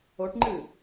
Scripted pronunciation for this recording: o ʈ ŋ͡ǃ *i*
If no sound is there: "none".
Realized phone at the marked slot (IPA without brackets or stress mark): ɨ